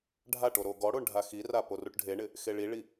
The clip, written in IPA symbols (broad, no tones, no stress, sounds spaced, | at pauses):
ɖʱ a ʈ o ɾ o ɡ ɔ ɽ o ɳ ɖʱ a x i r a p o r u ʈ ɖʱ e ɳ ɪ | x e ɭ i ɭ i